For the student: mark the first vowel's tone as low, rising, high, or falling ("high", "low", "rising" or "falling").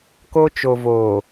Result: high